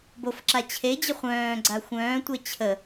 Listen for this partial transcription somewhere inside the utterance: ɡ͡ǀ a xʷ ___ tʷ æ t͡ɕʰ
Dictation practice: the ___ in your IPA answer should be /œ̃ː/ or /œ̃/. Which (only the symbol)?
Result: œ̃ː